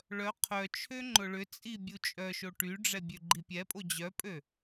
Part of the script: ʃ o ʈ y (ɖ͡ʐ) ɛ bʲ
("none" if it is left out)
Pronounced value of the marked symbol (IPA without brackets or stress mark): ɖ͡ʐ